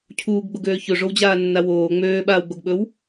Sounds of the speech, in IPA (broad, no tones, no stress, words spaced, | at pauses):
cʰuːɡɡ͡boɡøː çɵʐowd͡ʑaːnːa woː ŋ͡møːɓaːwɡ͡boɡɓɵw